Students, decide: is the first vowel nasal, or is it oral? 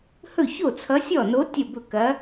oral